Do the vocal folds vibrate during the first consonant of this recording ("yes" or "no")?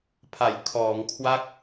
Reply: no